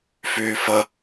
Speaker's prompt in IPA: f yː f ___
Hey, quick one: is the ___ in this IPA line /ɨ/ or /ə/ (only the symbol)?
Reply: ə